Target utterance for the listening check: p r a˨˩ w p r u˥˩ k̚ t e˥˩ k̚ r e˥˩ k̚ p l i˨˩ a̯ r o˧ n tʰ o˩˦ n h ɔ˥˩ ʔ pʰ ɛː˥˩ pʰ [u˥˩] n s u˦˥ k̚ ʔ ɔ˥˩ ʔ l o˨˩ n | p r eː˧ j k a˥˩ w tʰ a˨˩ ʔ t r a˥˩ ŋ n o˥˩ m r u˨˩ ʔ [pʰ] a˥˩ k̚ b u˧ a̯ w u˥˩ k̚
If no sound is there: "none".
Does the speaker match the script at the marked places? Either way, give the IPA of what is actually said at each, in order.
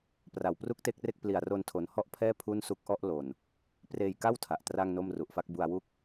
u˥˩, f

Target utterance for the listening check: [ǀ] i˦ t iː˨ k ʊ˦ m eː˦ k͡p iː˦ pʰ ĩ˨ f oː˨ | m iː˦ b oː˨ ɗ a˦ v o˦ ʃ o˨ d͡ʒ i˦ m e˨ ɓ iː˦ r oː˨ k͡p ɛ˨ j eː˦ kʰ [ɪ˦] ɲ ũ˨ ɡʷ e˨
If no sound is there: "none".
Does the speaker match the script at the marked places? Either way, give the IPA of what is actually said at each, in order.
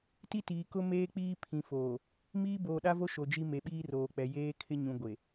t, ɪ˦

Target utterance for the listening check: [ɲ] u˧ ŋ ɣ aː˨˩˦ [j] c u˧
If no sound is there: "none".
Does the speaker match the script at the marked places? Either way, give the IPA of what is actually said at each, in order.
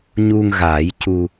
ɲ, j

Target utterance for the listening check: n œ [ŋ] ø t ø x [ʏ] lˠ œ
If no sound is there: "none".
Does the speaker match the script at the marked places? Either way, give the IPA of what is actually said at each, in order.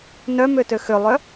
m, ʏ

